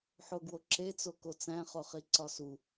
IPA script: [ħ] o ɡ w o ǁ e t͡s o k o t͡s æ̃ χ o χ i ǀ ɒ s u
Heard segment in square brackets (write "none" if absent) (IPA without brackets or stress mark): ħ